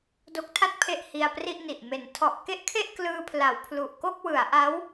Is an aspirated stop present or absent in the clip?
present